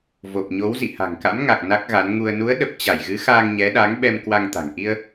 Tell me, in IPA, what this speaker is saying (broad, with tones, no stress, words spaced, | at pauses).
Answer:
vo˨˩p̚ɲo˨˦wzḭ˧˨ ha̤˨˩ŋka̰˧˥mŋa˨˩k̚ na˦˥k̚ɣa˨˦n ŋu˧ə̯ nu˨˦ə̯ ɗə˨˩p̚ t͡ɕa˧˩jɣɨ˨˦ xaː˧ŋɲɛ˨˦ ɗaː˨˦ŋɓɛ˧m kwa˧ŋt̪a̤˨˩ŋ ʔi˧ə̯